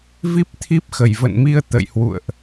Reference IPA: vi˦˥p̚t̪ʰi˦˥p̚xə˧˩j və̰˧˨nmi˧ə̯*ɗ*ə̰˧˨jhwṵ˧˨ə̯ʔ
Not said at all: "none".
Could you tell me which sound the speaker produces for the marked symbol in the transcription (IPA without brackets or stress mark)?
t̪